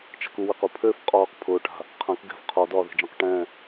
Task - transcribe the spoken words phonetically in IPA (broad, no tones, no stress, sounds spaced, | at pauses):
t͡ʃ a̤ k u w e q u pʰ ø f qʼ ɒː q pʰ ʊː ʈ a̤ | qʰ ã k ɡ ɛ̤ f qʰ ɒ d ɒː ð e̤ d͡ʒ ã q ʈ ɛ̃